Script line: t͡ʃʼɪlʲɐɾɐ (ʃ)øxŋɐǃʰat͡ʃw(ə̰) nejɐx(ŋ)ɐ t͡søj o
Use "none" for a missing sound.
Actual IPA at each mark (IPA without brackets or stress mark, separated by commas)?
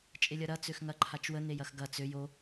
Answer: t͡s, ə, ɡ